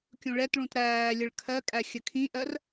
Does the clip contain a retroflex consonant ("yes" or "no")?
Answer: yes